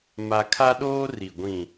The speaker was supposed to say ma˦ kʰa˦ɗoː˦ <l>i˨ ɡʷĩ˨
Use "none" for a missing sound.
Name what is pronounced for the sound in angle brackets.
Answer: r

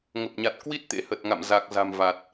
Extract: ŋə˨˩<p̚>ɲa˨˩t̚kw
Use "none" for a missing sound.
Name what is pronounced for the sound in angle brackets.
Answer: p̚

